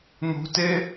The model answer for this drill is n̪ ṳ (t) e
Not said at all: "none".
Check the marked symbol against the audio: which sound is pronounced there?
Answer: t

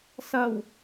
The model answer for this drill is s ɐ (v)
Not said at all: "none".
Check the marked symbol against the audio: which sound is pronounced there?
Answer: w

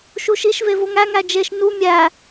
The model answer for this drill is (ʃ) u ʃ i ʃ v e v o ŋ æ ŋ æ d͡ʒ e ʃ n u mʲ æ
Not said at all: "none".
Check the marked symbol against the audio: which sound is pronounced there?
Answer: ʃ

